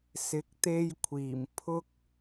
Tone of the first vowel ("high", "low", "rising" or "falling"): rising